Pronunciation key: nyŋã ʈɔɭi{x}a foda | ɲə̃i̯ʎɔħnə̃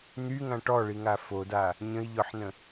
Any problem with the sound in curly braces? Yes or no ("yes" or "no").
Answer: yes